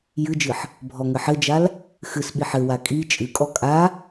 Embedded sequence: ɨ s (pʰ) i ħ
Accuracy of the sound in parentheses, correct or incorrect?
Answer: incorrect